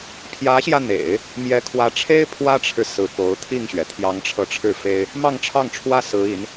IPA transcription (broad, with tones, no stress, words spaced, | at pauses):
pʰjä˧˥ɕjä˧n̪ḛ˨˩˦ɪ̯ | mjɛ˧˥kʰwä˧˥ʈ͡ʂʰe˥ɪ̯ pʰwä˥ʈ͡ʂʰɻ̩˨ sɹ̩˧˥po˧˥ʊ̯ t̪ʰi˥˩ŋɕɥɛ˩ t̪ʰjɑ˧˥ŋʈ͡ʂʰɤ˧˥ʈ͡ʂʰɻ̩˥˩fe˥ɪ̯ | mɑ˥˧ŋʈ͡ʂʰɑ˥˩ŋʈ͡ʂʰwä˥ sɹ̩˧˥i˧˥n